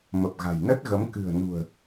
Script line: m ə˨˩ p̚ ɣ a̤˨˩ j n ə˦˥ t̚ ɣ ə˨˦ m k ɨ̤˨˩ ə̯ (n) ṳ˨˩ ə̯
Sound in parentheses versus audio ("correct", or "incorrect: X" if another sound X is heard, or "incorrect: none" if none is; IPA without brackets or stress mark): correct